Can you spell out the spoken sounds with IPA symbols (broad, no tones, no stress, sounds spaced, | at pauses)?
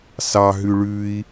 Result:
s ɑ ɦ ʉ ɭ ʉ i̯